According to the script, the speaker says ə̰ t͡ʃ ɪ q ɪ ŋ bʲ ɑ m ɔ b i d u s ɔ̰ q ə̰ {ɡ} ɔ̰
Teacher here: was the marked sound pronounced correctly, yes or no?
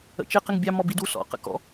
no